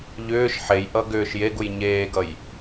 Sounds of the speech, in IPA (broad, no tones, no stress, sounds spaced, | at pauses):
ʎ ʏː ʃ ħ e j ʔ ʌ ɡ ʏː ʃ j e ɡ u j ɲ eː ɡ ʌ j